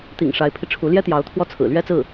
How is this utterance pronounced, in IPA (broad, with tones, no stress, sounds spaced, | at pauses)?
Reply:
t̪ ḭ˨˩ ŋ ʂ a˧˥ ɪ̯ pʰ i˧ ʈ͡ʂʰ u˧˥ l j ɛ˥ t̪ j ɑ˧˥ ʊ̯ t̪ʰ w ɔ˥˩ t͡sʰ ɹ̩˨˩ l ɥ ɛ˥ t͡s ɹ̩˥˩